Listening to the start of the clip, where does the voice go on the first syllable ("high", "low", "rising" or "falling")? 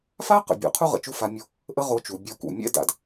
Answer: high